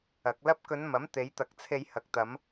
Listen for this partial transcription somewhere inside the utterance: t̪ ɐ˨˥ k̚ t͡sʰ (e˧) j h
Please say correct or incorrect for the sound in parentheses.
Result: correct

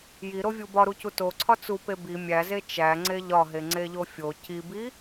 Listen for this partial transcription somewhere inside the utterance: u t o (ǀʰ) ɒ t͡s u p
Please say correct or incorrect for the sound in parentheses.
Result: correct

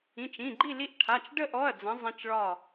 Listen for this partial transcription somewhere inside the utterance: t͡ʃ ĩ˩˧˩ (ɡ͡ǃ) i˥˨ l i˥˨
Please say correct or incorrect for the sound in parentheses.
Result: correct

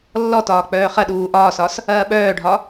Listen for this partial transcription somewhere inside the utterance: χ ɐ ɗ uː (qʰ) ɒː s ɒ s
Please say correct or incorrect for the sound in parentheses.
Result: incorrect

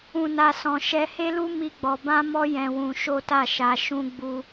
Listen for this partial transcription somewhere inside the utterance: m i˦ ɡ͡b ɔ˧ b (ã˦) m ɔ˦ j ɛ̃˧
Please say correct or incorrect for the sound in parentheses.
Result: correct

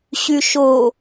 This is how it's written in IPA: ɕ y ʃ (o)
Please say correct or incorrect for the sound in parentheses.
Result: correct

